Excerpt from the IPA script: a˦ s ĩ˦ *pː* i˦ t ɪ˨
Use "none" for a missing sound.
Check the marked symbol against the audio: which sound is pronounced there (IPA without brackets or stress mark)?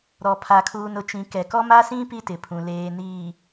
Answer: p